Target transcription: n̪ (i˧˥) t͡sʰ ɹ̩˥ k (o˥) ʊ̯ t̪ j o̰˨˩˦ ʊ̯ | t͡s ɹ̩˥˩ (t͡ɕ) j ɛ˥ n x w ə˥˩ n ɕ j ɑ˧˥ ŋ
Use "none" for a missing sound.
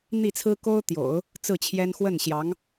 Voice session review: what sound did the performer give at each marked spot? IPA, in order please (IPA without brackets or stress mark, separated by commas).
i˥˩, o˥, t͡ɕʰ